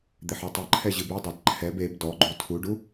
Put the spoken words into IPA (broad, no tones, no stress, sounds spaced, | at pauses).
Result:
d̪ e ħ ɔ tˤ ɘ ǃʰ ɛ ʑ ɨ b ɨ dˤ a d ǃʰ ɛ b e b d ɔ ɡ͡ǃ u tʰ u ɖ u